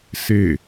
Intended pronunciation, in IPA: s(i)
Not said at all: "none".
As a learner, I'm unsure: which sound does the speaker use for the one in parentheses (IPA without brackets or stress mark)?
e